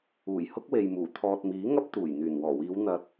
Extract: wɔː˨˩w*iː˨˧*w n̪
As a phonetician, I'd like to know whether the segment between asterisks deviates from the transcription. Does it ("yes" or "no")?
no